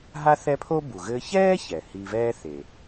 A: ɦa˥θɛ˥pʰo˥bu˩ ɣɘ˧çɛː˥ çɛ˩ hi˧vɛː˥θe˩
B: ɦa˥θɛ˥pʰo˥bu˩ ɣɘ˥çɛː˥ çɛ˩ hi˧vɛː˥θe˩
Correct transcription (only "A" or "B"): A